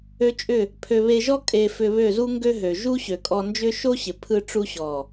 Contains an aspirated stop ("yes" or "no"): yes